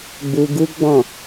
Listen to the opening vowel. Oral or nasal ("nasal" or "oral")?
oral